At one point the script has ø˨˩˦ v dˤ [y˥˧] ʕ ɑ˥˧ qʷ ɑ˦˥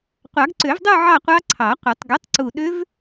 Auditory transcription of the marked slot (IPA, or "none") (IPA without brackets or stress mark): u˥˧